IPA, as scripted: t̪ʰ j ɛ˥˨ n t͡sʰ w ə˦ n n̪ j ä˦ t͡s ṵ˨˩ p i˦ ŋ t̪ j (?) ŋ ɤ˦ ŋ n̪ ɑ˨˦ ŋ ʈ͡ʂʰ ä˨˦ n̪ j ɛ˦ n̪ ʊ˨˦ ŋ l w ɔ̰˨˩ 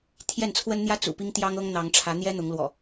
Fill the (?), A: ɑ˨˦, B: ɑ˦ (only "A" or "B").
B